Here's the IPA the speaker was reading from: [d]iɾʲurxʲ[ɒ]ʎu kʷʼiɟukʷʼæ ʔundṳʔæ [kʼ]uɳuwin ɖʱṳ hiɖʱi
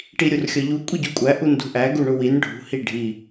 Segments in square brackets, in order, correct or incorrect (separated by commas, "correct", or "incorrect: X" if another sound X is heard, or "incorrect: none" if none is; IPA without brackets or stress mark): incorrect: ʈ, correct, incorrect: ɡ